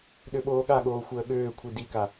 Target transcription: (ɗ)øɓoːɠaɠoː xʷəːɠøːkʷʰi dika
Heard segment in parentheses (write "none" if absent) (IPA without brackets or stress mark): ɗ